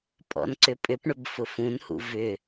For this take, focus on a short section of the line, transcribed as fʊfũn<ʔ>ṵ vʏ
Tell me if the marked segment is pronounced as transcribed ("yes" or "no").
no